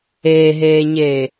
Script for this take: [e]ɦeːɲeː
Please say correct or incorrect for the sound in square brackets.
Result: incorrect